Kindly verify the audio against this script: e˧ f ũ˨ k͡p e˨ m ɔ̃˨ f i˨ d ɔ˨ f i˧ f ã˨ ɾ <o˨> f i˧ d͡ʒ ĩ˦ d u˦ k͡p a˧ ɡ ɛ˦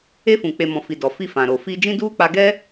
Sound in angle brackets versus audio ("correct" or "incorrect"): correct